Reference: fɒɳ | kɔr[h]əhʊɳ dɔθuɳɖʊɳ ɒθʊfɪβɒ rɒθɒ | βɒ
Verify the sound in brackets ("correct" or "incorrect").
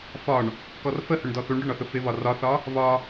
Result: incorrect